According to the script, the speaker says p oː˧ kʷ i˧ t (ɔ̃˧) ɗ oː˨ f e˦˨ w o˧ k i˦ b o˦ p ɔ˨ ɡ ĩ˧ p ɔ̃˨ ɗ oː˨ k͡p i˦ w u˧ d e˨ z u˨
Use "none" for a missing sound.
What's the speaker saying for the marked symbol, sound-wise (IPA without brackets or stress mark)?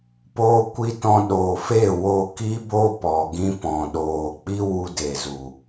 ɔ̃˧